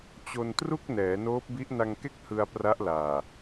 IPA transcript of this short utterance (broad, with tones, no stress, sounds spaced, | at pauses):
t͡ɕ o˧ n t r u˥˩ k̚ n ɛː˩˦ n oː˦˥ p̚ b i˦˥ ʔ n a˧ ŋ k e˥˩ k̚ h ɯ˧ a̯ p r a˦˥ ʔ l aː˨˩